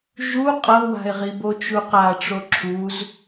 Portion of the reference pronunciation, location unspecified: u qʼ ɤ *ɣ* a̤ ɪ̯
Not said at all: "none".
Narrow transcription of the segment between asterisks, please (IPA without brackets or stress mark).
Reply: w